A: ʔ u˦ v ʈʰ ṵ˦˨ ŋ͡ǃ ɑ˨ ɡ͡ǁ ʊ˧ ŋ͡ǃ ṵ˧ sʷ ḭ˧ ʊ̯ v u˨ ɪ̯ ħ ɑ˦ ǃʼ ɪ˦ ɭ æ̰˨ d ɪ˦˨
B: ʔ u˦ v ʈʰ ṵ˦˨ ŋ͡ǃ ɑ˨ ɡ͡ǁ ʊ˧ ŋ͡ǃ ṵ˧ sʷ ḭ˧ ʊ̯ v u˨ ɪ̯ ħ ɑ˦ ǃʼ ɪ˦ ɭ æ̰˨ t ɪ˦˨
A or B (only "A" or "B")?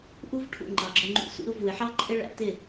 B